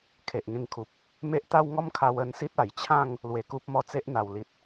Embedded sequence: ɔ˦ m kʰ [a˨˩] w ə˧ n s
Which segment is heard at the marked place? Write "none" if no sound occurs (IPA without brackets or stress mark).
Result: a˧